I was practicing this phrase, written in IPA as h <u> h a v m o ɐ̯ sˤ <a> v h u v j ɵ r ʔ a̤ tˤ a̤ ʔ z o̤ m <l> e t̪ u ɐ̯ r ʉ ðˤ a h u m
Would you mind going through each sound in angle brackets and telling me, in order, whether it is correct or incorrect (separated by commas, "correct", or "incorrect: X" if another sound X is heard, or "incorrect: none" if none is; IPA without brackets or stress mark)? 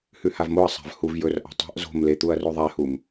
incorrect: ʉ, incorrect: a̤, correct